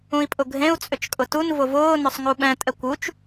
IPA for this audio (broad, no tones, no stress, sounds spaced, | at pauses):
ũ i̯ pʼ ʊ ɡʱ ẽ u̯ t͡sʼ ʏ t͡ʃ kʼ ʊ t u n v ʊ v ʊː n ʏ sˤ ŋ u ɓ ɛ̃ tʼ ɛ kʷ u t͡ʃ